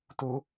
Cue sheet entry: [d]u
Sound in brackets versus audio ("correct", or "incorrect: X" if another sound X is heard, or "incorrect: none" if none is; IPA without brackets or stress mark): incorrect: t